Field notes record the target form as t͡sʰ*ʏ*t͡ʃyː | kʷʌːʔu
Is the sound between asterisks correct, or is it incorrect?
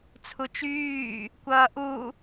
incorrect